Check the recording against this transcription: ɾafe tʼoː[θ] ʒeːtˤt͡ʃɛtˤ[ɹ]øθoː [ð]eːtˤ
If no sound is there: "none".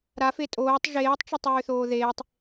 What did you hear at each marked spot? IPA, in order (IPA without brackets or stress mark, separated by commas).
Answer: tˤ, ɹ, ð